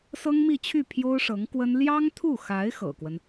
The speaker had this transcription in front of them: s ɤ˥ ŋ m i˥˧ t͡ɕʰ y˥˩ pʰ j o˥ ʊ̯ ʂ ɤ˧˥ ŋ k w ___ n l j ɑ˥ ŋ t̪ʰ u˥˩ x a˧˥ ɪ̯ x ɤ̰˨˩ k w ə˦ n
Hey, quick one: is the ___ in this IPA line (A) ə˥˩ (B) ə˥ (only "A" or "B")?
B